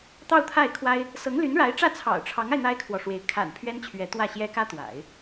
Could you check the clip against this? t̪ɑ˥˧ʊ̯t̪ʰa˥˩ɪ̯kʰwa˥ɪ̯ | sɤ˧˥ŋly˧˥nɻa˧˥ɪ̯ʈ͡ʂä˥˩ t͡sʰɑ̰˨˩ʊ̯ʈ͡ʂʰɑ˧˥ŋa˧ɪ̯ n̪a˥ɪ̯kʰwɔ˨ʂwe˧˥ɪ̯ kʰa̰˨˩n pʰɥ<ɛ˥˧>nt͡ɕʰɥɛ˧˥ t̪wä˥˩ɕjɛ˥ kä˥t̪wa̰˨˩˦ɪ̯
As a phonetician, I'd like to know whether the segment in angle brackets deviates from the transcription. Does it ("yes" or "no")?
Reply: yes